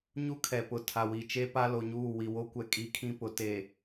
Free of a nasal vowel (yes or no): no